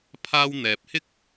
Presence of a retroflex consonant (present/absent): absent